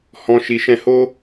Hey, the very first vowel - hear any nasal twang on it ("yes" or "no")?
yes